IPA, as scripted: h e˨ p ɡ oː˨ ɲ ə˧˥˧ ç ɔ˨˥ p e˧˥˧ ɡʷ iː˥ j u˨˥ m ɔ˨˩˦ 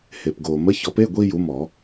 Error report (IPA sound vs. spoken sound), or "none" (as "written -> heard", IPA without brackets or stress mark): ɲ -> m